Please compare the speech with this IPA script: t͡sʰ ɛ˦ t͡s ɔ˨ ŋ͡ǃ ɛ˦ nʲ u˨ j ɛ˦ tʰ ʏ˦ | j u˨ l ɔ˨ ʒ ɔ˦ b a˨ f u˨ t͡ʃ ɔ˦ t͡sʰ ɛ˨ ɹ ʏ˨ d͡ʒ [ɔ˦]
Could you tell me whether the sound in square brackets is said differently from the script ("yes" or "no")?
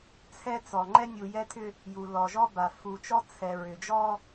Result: no